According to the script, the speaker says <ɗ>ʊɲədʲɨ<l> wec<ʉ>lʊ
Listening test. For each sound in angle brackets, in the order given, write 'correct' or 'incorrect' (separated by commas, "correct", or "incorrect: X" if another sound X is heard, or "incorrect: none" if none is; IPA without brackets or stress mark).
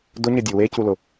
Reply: incorrect: d, incorrect: none, incorrect: u